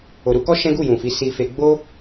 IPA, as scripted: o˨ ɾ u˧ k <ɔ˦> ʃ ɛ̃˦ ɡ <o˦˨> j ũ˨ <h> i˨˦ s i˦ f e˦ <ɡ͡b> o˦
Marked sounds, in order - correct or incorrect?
correct, incorrect, incorrect, correct

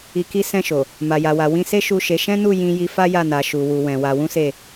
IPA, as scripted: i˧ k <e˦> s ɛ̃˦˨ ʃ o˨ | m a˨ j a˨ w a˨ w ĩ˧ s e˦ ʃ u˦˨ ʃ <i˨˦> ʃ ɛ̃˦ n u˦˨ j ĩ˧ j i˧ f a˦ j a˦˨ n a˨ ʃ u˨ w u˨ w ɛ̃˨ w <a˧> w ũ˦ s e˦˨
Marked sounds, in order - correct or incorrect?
incorrect, incorrect, correct

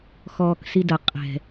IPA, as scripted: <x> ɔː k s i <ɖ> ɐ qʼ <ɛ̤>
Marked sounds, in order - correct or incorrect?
correct, incorrect, correct

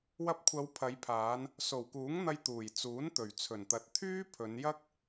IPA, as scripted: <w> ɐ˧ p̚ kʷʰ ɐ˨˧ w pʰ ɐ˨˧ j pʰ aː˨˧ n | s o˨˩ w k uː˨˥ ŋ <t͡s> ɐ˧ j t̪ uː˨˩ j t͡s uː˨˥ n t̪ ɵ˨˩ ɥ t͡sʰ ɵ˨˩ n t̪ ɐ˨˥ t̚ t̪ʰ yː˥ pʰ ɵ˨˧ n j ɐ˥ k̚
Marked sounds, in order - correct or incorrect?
correct, incorrect

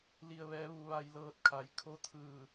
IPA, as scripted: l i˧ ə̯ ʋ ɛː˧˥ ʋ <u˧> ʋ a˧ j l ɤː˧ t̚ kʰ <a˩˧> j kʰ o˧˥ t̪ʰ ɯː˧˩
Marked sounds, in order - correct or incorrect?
correct, correct

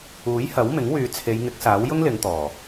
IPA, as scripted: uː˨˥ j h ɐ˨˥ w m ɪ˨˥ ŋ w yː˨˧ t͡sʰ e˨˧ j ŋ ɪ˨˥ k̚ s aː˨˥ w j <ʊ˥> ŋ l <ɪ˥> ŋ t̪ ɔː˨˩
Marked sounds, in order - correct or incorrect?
correct, incorrect

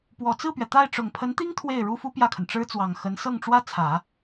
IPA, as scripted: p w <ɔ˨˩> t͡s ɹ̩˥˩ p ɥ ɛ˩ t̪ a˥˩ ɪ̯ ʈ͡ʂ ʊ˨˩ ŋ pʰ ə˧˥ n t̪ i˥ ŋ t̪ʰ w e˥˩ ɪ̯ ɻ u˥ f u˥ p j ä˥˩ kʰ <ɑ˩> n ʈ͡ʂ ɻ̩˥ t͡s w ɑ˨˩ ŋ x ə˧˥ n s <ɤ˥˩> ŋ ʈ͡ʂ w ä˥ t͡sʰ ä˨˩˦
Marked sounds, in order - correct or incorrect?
correct, incorrect, correct

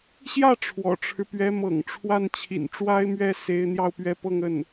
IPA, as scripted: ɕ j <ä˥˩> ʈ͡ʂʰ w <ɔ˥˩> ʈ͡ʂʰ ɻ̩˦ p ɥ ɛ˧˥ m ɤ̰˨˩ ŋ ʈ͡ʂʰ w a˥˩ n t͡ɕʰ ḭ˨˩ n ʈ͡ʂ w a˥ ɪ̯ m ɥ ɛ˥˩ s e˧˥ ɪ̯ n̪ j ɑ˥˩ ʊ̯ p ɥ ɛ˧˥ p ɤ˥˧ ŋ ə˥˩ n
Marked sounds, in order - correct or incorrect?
correct, incorrect

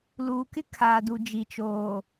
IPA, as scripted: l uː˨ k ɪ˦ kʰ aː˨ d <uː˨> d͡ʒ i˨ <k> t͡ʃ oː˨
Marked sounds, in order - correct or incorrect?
incorrect, incorrect

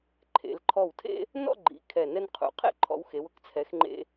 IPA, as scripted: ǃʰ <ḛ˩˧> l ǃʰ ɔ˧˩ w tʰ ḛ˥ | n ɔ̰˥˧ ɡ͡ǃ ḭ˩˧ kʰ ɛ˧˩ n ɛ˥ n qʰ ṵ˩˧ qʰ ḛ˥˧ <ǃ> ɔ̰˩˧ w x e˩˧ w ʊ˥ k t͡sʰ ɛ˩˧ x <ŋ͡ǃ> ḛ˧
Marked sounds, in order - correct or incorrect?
correct, incorrect, correct

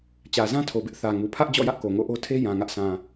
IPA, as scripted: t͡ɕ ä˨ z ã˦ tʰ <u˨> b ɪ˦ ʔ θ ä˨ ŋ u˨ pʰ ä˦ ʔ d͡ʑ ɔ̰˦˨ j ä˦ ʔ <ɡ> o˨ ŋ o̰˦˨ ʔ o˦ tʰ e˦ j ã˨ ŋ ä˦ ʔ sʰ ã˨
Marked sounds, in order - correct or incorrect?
incorrect, incorrect

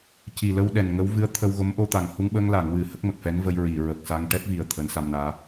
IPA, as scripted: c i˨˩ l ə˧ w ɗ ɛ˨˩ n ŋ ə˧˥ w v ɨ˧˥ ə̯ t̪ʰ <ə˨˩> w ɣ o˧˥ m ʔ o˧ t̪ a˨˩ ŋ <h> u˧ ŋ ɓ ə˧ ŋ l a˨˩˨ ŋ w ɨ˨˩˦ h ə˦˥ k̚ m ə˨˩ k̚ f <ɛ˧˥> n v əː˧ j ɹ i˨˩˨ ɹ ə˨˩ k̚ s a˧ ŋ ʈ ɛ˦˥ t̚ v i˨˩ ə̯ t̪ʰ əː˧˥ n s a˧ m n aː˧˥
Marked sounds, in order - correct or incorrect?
incorrect, correct, correct

